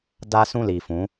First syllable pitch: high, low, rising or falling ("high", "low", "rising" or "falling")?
high